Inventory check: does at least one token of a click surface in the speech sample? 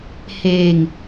no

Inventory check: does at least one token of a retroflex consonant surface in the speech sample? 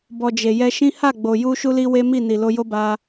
no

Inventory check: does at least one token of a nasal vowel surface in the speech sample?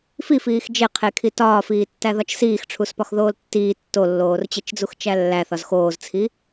no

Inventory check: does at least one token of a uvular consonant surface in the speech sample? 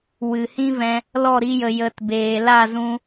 no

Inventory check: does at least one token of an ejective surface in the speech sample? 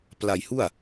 no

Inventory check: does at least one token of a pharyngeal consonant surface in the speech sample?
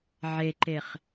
yes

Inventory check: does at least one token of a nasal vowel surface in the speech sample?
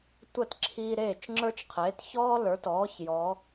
no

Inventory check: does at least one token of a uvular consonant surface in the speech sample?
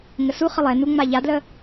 yes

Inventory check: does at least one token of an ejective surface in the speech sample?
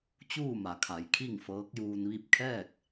no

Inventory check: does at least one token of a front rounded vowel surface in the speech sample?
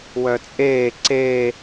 yes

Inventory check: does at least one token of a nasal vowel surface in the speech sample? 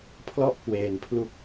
no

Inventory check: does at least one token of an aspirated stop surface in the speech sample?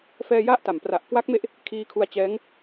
yes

